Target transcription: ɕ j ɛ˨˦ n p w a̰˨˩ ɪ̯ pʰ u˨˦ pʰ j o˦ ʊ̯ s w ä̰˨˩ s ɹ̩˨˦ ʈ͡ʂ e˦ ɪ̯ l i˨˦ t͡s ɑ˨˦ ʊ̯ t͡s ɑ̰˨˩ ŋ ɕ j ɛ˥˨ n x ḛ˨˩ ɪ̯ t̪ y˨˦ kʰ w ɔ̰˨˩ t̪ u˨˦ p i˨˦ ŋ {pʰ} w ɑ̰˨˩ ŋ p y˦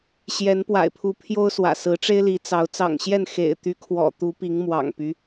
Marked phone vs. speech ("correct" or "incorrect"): incorrect